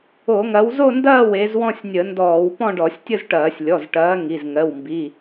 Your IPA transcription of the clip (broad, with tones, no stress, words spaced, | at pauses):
o˧˩˧ŋɐ˨˦w zo˥˧ndɐː˥˧ we˨˦z wɔ̃˥˧sʲnʲə˧˩˧ndɔː˧˩˧w pɔ̃˥˧ɖɔ˧˩˧sʲtʲə˥˧zʈɐː˧˩˧sʲ lʲɔ˩˧˩zʈɐː˨˦ ŋi˩˧˩zŋɜ˩˧˩wmbi˩˧˩